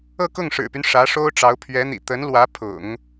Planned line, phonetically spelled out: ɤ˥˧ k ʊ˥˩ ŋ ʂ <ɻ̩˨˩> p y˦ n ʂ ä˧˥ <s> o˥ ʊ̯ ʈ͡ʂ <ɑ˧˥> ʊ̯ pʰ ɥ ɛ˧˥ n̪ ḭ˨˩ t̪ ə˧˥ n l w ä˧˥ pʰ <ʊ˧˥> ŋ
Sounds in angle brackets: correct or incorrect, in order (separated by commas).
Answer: correct, incorrect, correct, incorrect